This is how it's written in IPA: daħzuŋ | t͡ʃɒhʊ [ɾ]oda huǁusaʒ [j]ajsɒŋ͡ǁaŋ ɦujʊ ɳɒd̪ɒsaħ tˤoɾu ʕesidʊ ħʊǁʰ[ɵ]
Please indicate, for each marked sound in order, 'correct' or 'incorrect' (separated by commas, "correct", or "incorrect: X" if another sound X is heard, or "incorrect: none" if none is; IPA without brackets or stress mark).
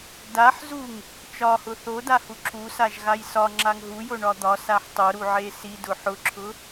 incorrect: θ, incorrect: ɣ, incorrect: ʊ